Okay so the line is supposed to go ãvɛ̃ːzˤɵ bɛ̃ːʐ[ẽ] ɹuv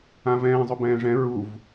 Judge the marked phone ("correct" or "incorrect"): incorrect